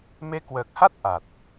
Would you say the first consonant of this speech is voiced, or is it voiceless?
voiced